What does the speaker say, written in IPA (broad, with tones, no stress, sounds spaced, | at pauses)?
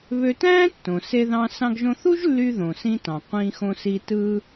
β ø˧ t æ̃ː˥ tː õ˩ s e˧ ð ɑ̃˧ s ɑ̃˧ ɡ ʒ õ˧ θ u˥ ʒ lː y˧ ð õ˩ s ĩ˧ t ɑ̃˩ qʷ ĩ˧ x õ˧ s i˧ t ɯː˧